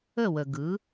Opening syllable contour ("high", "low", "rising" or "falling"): falling